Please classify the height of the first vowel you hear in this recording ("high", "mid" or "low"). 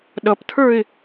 mid